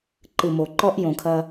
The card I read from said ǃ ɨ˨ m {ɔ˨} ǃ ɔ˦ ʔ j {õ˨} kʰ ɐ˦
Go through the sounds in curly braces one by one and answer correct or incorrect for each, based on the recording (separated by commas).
incorrect, correct